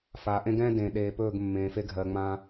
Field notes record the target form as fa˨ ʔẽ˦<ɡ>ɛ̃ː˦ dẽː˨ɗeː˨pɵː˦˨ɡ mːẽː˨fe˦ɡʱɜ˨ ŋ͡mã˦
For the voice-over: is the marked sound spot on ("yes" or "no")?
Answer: yes